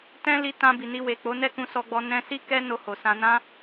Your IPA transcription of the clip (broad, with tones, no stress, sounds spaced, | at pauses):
t ɛ̃˦ l i˧ t ã˧ b i˨ n i˧ w e˨ k͡p o˨˦ n ɛ˦ k ũ˧ s ɔ˧ ɡ͡b ɔ˧ n ɛ̃˧ s i˦ k ɛ˦ n o˧ h o˨ s ã˧ n ã˦